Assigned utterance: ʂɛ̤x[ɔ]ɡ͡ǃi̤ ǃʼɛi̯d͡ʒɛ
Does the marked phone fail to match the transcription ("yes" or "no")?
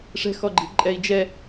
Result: no